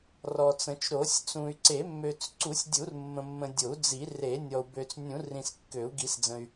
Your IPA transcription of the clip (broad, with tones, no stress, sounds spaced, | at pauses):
r ɔ˨ t͡s ə̃˨˩˦ t͡ʃ ɾ o˨˩˦ sʲ t͡s ũ˨ y̯ ǀ e˨˩˦ mː ø˨ t͡s ǀ u˨˩˦ sʲ dʲ u˨˩˦ r mː ə̃˨ mː ə̃˨ dʲ o˨˩˦ u̯ d͡z i˨˩˦ r e˨˩˦ nʲ ɔ˨ u̯ b ø˨ t͡s nʲ ũ˨˩˦ r ĩ˨ s kː ø˨˩˦ u̯ ɡ i˨˩˦ s d͡z ə̃˨ y̯